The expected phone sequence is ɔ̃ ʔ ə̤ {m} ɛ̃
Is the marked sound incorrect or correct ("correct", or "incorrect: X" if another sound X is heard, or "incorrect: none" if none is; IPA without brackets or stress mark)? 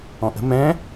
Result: correct